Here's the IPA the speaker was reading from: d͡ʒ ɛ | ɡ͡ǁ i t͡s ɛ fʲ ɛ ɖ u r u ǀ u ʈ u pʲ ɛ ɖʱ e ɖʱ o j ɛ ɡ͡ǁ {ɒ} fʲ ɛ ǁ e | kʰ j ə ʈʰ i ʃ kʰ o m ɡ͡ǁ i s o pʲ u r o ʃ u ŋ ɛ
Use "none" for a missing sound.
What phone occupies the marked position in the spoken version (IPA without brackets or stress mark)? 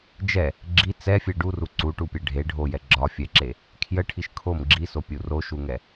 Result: ɒ